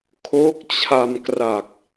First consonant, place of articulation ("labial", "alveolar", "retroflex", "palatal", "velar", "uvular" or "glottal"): velar